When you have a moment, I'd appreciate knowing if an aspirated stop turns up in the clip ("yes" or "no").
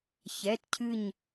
yes